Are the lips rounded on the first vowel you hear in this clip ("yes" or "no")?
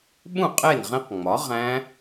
yes